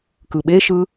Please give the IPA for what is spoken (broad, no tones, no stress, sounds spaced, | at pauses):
k ɯ ɓ e ʃ ɯ